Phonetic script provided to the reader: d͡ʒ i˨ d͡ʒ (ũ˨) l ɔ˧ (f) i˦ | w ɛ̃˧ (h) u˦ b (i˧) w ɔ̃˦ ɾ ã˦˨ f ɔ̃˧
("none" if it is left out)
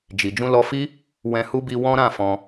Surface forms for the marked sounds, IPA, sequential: ũ˧, f, h, i˧

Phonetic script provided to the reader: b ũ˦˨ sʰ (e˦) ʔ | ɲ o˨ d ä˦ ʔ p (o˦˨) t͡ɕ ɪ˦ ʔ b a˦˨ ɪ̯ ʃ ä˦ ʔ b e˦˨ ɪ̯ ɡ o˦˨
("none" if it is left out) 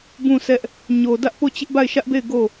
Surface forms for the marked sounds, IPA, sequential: ɛ˦, o˦˨

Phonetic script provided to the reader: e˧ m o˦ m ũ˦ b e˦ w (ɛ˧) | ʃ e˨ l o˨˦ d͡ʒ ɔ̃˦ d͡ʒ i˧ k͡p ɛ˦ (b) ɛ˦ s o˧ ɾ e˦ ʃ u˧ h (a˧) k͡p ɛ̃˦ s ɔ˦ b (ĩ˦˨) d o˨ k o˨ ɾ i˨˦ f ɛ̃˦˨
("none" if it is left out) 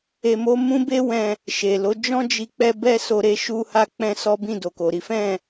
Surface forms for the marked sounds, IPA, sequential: ɛ̃˧, b, a˧, ĩ˦˨

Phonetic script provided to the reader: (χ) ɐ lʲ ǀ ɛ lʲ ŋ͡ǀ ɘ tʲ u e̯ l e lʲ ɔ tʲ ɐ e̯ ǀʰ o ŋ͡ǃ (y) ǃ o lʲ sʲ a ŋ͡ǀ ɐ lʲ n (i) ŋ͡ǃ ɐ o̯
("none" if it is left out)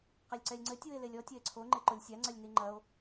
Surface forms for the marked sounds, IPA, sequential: q, e, i

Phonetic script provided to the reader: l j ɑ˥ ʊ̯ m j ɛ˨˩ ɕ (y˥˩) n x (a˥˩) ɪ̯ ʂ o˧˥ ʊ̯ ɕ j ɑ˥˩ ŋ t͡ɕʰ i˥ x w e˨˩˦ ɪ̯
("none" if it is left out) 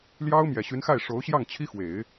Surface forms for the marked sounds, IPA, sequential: y˧˥, a˥˩

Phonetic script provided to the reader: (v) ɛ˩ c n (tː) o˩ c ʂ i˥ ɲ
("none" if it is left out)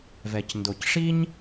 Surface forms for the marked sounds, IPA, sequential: v, d

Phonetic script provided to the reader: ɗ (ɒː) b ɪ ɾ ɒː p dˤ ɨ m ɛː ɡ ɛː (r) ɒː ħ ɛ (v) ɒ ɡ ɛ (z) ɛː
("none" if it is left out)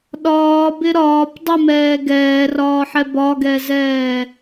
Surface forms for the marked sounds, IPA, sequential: ɒː, r, b, z

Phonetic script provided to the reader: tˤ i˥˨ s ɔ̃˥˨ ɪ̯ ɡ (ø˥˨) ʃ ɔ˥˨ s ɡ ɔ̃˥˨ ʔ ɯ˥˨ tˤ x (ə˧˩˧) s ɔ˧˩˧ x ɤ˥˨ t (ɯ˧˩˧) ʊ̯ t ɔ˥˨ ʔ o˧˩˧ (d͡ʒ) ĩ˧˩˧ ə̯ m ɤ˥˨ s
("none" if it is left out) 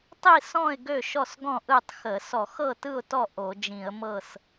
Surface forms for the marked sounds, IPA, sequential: ø˥˨, ə˧˩˧, ɯ˥˨, d͡ʒ

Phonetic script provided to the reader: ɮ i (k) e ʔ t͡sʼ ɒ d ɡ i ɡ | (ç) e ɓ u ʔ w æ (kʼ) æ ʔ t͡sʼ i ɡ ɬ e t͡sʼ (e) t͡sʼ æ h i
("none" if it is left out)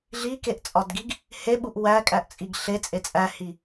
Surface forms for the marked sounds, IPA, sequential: k, h, kʼ, e

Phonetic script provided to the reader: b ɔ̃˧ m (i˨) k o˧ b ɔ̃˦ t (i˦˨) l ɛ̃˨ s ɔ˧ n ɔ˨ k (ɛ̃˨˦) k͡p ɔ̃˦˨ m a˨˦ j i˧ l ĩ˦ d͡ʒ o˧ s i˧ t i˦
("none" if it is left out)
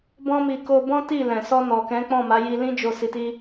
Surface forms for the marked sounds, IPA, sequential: i˨, i˦˨, ɛ̃˨˦

